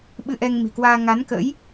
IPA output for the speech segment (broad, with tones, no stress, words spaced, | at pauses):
ɓɨ˧ʔɛ˧ŋ mi̤˨˩kwaː˧ ŋa˨˦nkə̰˧˥j